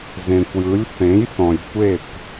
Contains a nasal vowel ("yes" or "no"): yes